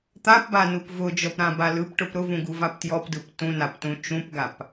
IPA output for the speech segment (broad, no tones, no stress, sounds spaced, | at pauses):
t̪ a p b a n u p v ʊ d͡ʒ ɔ p ɾ ã b a l ɯ p ʈ ʊ p ɾ ʊ v ũ ɡ u v a p t j ɔ p d ɯ p t ũ n a p t ũ t͡ʃ ũ p ɡ a p